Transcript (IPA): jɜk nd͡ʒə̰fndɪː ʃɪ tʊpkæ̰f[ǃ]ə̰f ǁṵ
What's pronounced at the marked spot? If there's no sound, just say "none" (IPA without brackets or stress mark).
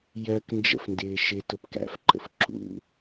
ǃ